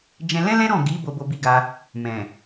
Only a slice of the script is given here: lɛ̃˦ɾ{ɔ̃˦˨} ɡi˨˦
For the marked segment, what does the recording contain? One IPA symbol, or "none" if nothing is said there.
ɔ̃˦˨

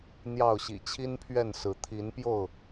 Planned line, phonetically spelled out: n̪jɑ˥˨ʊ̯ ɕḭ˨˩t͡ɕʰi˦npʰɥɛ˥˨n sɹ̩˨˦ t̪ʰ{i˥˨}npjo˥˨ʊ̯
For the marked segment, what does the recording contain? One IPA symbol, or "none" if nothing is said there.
i˨˦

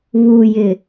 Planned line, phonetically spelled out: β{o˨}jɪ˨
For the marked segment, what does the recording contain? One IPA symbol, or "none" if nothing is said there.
u˨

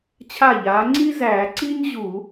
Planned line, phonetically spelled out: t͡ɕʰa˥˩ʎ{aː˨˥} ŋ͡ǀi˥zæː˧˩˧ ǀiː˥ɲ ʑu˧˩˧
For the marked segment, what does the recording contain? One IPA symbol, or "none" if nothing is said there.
aː˨˥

